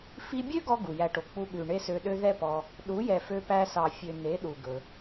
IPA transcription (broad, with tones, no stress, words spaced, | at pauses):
fi˧bʲø˦ɡɔ˧ ɡu˨jæ˧ʈo˨ k͡pu˧ɠʉ˨ ɳe˦sø˧ɗø˦ ðɛ˦pɔ˧ | ɗu˨˦jɛ˨fø˧pæ˧ sɑ˨ fʲø˨ne˨˦ ɗu˨ ɡɵ˧